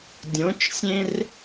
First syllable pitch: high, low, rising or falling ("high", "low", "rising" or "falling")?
rising